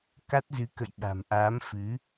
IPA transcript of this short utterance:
k a˦˥ t̚ z ɨ˨˦ k ə̰˧˨ j ɓ a̤˨˩ m ʔ aː˨˦ m f ɨ˨˦

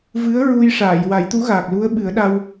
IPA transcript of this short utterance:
v ɨ˧˥ ə̯ ɹ u˧ j ʂ aː˨˩˨ j w a˨˩˦ j t̪ u˧˥ ɣ aː˨˩ k̚ l u˧˥ ə̯ ɓ ɨ˨˩˦ ə̯ ɗ a˧ w

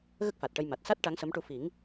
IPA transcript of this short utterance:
ɣ ə˦˥ k̚ f a˨˩ t̚ ʈ ə˧ j m a˨˩ t̚ s a˦˥ t̚ ʈ a˧˥ ŋ s ə˧˥ m ʈ u˧ f i˨˩˦ ŋ

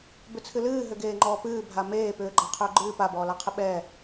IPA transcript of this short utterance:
b ʏ t͡sʰ ɨ l ɨː ɦ ʏ ɡ eː ŋ͡ǃ ɔː p ɨː bʱ a m eː p ʏː ɡ͡ǃ a qʰ ʏː ɡ͡ǃ ɨː p a b ɔː l a qʰ ɨ ɓ ɛ

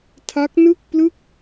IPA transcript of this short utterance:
tʰ a˦˥ k̚ n ɯ˥˩ k̚ p l ɯ˥˩ k̚

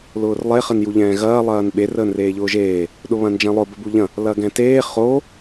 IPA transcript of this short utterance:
l ʊː r lˠ e χ ə n j u ʎ ɛ̃ː ɣ ɐː lˠ ɐː n ɓ e r əː n r eː ʎ ʊː ʒ eː | ɗ ʊ β ɐ̃ n d͡ʒ ɛ̃ lˠ ʊ b ə b u ʎ ɐ̃ | l ɐ ɡ ɛ̃ t eː χ o

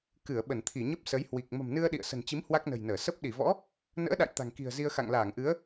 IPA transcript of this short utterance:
k ɨ˧˩ ə̯ ɓ ə˧˩ n t̪ʰ i˧˩ ɲ ə˦˥ p̚ s ə˨˦ j h w i˨˩ k̚ m ə̤˨˩ m n ɨ˧ ə̯ ɗ ḭ˧˨ ə̯ s ə̤˨˩ n t͡ɕ i˨˦ m h w a˦˥ k̚ n ə̤˨˩ j n əː˧˩ s ə˦˥ p̚ ɗ i˧˩ v ɔ̰˧˥ | n ə̰ː˧˥ ɗ a̰˧˨ j t̪ a̤˨˩ ŋ k i̤˨˩ ə̯ z i˧ ə̯ x a̰˧˨ ŋ l aː˧˩ ŋ ʔ ɨ˨˦ ə̯

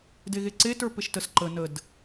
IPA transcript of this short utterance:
d e ɣ e ǀ e t ə˞ p e ʃ t ə s ǃ ə n ə d

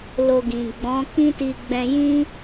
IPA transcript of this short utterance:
l o˧ ɡ ĩ˨ ɡ͡b ɔ̃˨˦ k ĩ˦ t i˧ ɡ͡b ɛ̃˧ j ĩ˦

